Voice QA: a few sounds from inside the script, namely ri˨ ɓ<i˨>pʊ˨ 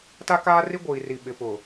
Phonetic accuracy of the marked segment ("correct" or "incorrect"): incorrect